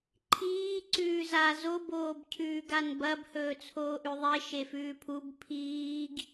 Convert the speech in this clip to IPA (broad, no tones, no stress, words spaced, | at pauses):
ǃʰiː ǀʉːza zo boːbcʰʉːɡanbɐb hɵːt͡sʰoːʔʉðˤe ʃefʉːpʰub pʰiːɡ